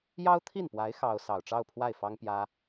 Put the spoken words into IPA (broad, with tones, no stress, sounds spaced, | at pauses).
j ɑ˥ ʊ̯ t̪ʰ i˥˩ n p w a˧˥ ɪ̯ x ɑ˥ ʊ̯ s ɑ˨˩ ʊ̯ ʈ͡ʂ ɑ˥˧ ʊ̯ pʰ w a˥˩ ɪ̯ f ɑ˥ ŋ p j ä˥